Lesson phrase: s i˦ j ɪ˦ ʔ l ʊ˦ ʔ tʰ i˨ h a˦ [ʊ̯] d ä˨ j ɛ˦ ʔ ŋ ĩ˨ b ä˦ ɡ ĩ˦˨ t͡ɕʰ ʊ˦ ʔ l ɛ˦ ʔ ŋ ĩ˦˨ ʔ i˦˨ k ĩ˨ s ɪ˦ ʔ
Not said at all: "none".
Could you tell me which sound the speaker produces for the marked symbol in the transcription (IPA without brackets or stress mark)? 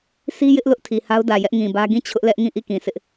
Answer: ʊ̯